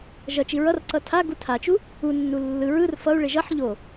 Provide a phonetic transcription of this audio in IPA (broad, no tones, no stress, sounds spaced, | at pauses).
ʒ ʌ t͡ʃ i ɹ ʌ r ǀ ʌ tʰ a ɡ u tʰ a t͡ʃ u | u nː u lː ɯ ɹ ɯ r f ʌ u̯ ɭ e ʒ ʌ ħ ʎ o